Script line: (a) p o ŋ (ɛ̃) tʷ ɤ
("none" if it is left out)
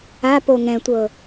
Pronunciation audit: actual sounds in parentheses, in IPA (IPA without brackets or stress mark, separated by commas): a, ɛ̃